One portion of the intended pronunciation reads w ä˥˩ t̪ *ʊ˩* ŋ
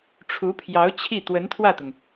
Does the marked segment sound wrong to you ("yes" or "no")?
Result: no